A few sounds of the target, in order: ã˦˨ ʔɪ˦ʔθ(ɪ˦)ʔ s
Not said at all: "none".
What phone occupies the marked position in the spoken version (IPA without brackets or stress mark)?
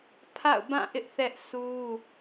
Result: ɛ˦